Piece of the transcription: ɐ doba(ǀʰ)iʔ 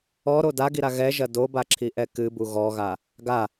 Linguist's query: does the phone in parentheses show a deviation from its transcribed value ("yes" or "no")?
yes